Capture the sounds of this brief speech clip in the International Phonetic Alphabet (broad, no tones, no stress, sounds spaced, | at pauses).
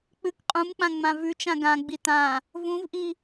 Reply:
k͡p ɨ k qʼ ũ m k͡p ã ŋ͡m ã v ʉ t͡ʃ ã ɡ ã ɡ͡b i t ã | v ũ v ʔ i